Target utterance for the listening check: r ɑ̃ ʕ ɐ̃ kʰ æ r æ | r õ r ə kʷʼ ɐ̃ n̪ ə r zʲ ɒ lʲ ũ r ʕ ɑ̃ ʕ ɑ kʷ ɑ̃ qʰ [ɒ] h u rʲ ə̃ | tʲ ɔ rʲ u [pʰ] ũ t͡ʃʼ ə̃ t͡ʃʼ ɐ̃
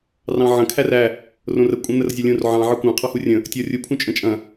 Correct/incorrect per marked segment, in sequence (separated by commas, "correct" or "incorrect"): incorrect, correct